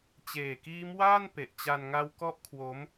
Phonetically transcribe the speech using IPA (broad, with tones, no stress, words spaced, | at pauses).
t͡ɕeː˨˩kiː˦˥mwaː˥˩n pe˨˩ʔt͡ɕa˧nŋa˦˥w kɔ˦˥ʔ kʰwo˦˥m